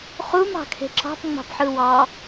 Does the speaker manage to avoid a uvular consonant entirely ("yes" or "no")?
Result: no